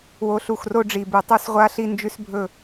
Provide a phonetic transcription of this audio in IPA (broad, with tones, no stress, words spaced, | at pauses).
wo˨ɬu˨x ro˦ɖ͡ʐi˨ bʉ˨tˤo˦sʁʷa˦ɬi˦ nd͡ʒʉ˦sbʱɵ˦˨